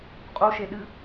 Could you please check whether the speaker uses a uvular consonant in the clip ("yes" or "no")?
yes